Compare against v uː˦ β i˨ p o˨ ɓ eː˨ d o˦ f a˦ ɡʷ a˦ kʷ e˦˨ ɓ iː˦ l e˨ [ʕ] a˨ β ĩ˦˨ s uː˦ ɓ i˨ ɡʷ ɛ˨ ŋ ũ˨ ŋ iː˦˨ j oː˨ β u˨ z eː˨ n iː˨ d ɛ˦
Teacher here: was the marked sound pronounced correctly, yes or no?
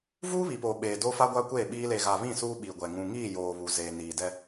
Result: no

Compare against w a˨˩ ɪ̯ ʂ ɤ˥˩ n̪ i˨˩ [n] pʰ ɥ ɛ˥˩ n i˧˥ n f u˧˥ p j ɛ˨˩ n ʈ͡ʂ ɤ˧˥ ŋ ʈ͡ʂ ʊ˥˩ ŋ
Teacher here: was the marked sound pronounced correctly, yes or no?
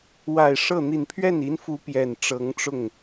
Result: yes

